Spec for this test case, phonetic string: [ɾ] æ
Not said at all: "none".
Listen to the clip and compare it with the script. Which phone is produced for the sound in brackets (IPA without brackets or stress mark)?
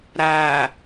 ɾ